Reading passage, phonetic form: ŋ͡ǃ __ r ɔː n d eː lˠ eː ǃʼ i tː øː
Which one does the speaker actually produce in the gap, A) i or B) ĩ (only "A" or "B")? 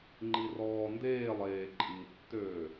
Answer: A